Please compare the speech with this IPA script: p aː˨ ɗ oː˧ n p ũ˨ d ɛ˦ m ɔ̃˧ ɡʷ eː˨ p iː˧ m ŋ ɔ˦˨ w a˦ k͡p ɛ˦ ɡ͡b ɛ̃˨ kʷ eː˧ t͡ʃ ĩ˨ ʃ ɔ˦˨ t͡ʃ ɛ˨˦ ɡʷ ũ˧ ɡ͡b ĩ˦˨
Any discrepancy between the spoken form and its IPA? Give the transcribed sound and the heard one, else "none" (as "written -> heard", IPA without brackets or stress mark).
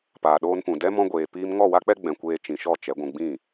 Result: none